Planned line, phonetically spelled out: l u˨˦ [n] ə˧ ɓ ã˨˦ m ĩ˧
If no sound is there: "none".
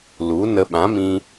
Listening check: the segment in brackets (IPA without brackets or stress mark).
n